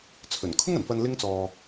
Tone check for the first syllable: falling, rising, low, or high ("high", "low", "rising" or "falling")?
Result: low